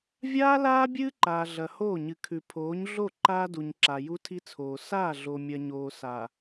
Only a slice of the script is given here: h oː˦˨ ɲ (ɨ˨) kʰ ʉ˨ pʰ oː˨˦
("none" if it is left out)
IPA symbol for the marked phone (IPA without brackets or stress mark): ɨ˨